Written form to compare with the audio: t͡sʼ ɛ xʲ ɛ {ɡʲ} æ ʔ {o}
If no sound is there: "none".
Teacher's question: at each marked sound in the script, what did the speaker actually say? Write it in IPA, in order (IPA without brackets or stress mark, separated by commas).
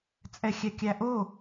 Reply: kʲ, o